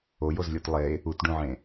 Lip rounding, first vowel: rounded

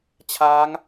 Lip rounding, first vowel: unrounded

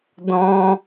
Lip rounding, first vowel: rounded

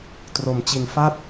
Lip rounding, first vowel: rounded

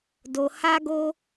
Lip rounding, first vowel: rounded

